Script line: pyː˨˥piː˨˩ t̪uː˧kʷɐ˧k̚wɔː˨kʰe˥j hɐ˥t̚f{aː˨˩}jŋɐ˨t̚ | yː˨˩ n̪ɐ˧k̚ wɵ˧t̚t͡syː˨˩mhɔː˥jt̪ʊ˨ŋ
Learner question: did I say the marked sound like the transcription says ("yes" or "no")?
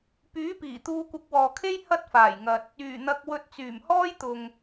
yes